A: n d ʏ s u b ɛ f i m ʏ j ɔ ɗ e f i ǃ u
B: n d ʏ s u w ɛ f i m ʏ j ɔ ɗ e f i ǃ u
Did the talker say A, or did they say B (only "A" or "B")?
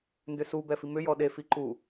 A